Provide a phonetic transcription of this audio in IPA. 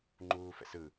ŋ͡ǃ uː f ɛ̰ s ɯ

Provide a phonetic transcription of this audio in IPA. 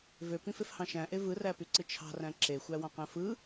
v ø p ĩ f e f h ɑ̃ ʃ æ̃ ʔ e v ɯ r æ p y ǀ ɯ t͡ʃʰ ɑ̤ r æ̃ ǁ e xʷ æ w ɑ̃ q æ̃ f ɯ

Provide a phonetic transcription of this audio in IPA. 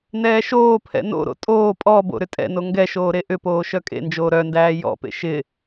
n ɛː ʃ oː pʰ ɛ̰ n o̰ ɾ o̰ tʼ oː pʼ ɔ b o̰ ɾ ʏ tʼ ɛ̰ n o ŋ ɡ ɛ ʃ oː ɾ e ʔ ʏ p oː ʃ œ kʼ ḛ n d͡ʒ oː ɾ œ n d æː j ɔ̰ p ḛ ʃ ɪ

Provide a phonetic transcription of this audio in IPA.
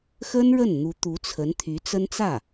x ə˥ n ɻ ə˥˩ n n̪ u˧˥ t̪ u˧˥ t͡sʰ ə˧˥ n t̪ʰ y˧˥ t͡s ə˥ n t͡s ä˥˩

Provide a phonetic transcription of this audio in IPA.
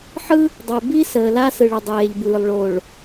ħ ɯ˦ | dˤ ə˨ ɪ̯ b i˦ s əː˨ l a˦ s ɯ˨ ɭ ə˨ dˤ eː˨ ʎ b ɯː˨ lˠ ɭ o˨ ɭ

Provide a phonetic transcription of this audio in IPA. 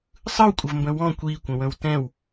sˤ ɯ w kʷʼ ə v m b ə̃ w ɔ̃ kʷ i kʷ ə̃ w ə̃ w t ɛ̃ w

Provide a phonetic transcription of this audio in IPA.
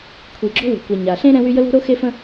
kʷʰ i˨ ɡ͡ǁ o̤˥ w e̤˨ kʷ ɛ˨ ɲ a˨ ɬ ẽ˥ ɾ ɛ̃˥ w y˥ j ə˥ l o̤˥ ɾ o˥ x e˥ f ə̃˥

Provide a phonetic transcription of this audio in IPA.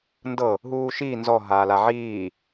n d ɤ | ɦ uː ʃ iː n z ɔ ɦ aː l a ʕ iː

